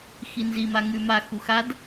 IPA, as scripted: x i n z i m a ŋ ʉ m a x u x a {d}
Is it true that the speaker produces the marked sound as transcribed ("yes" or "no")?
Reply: yes